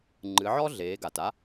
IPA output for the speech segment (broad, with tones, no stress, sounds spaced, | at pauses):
ŋ͡ǃ ɨ˩˧ ʕ ɔ˥ ɮ eː˩˧ ɡ a˩ t a˧˥